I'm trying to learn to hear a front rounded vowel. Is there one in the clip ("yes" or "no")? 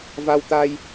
no